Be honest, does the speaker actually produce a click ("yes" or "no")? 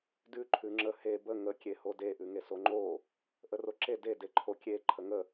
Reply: yes